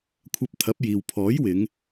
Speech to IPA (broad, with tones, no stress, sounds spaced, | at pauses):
kʷʰ ɐ˧ p̚ t̪ʰ ɐ˨˥ p̚ j iː˨ w pʰ ɔː˨˥ j w ɪ˨˧ ŋ